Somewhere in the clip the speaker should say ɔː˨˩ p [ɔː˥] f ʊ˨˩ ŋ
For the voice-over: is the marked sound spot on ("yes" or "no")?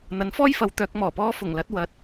yes